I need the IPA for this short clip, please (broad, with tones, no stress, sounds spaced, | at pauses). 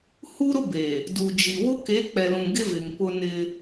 h u˦ ɾ ʊ˦ b e˨ | d u˨ d͡ʒ i˨ w ʊ˦ k e˨˦ k͡p ɛ˨ l ũ˨ ɡ ɪ˦ v ɪ˨ ŋ p ʊ˦ n ɪ˦